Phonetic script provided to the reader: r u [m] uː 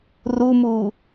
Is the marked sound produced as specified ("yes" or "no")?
yes